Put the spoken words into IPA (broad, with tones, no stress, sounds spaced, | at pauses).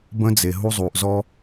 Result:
b ə̃˦ d͡z e˨ ɦ u˦ zˤ u˨ ʔ z ɔ˦